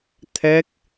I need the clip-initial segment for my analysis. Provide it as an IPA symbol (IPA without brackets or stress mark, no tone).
t̪ʰ